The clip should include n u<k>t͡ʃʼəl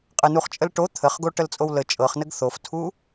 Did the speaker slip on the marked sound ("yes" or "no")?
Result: yes